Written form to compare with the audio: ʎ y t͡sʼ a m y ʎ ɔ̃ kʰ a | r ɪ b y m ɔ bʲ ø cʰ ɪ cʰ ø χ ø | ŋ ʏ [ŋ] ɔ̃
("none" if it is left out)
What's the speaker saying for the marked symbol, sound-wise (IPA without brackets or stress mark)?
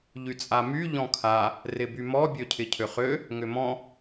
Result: m